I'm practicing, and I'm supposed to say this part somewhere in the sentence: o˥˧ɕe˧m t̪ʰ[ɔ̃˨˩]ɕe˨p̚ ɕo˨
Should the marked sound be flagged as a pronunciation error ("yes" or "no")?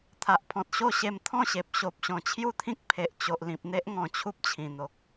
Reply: yes